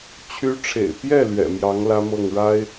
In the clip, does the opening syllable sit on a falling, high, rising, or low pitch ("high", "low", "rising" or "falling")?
rising